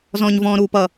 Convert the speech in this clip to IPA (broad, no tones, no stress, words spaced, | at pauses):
zɔ̃ːɲvɔ̃ːɾuːpʌ